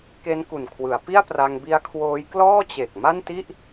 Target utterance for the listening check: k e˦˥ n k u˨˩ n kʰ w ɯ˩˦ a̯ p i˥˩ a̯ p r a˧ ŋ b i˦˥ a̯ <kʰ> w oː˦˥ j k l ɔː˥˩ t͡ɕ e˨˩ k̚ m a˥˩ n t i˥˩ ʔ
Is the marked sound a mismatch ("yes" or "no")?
no